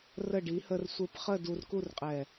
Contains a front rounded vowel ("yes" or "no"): no